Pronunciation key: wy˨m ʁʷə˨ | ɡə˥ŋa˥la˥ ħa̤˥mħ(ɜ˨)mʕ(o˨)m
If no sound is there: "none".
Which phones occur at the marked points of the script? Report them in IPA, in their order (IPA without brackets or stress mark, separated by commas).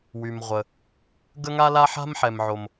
ɛ˨, o˨